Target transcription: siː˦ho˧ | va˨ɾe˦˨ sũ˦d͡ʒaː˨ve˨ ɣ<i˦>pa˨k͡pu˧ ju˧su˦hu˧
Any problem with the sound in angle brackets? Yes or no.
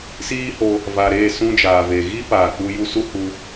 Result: no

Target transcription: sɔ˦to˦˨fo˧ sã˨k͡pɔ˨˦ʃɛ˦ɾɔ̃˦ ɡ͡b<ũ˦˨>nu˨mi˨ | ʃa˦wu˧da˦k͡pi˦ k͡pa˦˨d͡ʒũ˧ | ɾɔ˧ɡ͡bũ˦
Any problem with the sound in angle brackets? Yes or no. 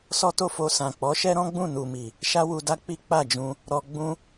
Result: no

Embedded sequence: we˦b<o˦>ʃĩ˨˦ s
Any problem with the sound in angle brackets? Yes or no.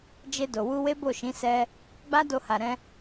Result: yes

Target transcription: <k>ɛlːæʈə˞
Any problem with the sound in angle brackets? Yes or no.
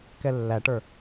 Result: no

